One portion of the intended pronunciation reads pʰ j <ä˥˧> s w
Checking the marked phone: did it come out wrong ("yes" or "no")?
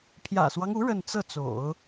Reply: yes